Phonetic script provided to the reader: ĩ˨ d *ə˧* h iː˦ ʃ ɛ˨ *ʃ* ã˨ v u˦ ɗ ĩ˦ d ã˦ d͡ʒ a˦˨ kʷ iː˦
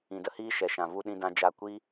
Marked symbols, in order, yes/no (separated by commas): yes, yes